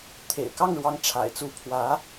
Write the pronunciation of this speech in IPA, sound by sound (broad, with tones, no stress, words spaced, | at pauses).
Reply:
t̪ʰḛ˨˩ɪ̯kɑ˥˩ŋɻwɑ˧˥ŋ ʈ͡ʂʰa̰˨˩ɪ̯t͡su˧˥pʰwä˧˥